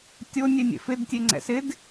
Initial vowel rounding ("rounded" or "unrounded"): rounded